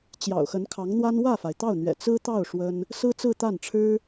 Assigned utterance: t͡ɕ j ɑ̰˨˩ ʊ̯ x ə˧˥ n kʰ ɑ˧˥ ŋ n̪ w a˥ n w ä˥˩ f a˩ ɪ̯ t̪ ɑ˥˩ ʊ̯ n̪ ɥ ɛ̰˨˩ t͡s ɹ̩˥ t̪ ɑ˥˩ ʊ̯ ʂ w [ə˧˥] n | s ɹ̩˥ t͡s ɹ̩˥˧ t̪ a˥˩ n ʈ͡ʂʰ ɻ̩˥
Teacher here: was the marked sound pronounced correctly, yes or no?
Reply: no